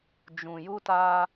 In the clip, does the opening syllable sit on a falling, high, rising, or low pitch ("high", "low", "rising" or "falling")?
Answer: low